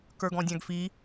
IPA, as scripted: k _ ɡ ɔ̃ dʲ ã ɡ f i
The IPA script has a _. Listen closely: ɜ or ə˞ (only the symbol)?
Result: ə˞